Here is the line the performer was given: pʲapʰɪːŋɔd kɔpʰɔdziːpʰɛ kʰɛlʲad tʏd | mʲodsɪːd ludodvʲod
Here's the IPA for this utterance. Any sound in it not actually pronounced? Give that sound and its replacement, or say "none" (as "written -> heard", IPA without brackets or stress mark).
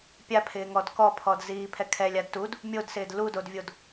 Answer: ʏ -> u